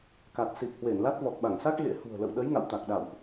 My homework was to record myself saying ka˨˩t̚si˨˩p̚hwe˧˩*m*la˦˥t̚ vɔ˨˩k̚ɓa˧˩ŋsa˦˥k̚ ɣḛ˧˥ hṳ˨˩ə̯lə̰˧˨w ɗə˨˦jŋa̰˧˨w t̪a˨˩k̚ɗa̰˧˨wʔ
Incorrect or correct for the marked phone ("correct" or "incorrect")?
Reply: incorrect